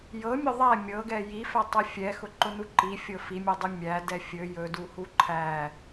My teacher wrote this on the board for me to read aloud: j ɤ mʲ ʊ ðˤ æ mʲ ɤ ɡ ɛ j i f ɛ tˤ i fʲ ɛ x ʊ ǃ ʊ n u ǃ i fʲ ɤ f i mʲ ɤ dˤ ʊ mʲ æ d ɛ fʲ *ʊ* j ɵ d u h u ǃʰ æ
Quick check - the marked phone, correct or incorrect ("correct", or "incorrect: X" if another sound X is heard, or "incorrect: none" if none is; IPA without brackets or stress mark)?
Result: incorrect: ɵ